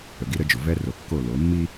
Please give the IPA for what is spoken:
ə˨ ɡ i˦ ɾ ə˦ d͡ʒ ʊ˨ v ɛ˦ r o˨ kː o˦˨ l o˨˦ mː i˦

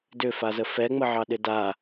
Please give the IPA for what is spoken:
d ʏ f a z ə f ɛ ŋ͡m ə ʕ ɑ ɗ ɪ d a

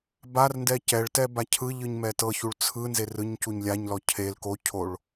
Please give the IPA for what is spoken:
b a r n d ɛ c ɛ ɭ t ɛ b a cʰ ɯ ʎ ɯ ɲ m ɛ t ɤ ç u ɭ t͡sʰ ɯ n z e r ɯ ɲ c u ɲ lʲ a ɲ l ɔ cʰ e l k o cʰ o ɭ

